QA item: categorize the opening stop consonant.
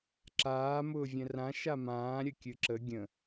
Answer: click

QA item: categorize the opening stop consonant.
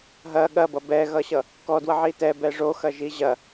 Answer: implosive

